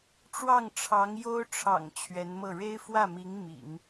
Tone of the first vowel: falling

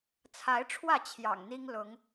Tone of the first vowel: rising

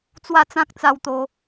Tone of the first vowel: falling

